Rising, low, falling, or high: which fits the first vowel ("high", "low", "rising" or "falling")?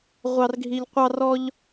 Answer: high